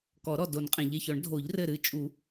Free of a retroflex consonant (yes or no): no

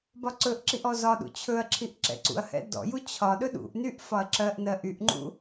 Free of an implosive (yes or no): no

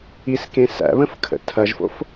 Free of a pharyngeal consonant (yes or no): yes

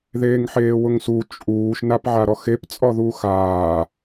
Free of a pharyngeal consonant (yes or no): no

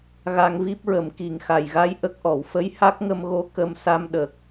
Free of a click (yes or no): yes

